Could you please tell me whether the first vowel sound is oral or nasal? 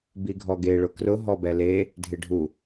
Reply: oral